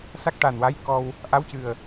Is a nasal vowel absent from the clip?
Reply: yes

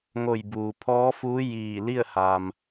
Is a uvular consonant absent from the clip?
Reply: yes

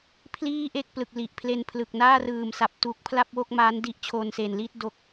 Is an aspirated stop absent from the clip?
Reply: no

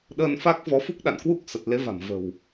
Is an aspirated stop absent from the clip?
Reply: yes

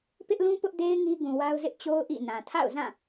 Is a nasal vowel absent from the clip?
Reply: no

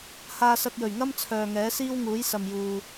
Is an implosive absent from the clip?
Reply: yes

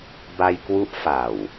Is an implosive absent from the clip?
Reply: yes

